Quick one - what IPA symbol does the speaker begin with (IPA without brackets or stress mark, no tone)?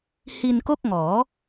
h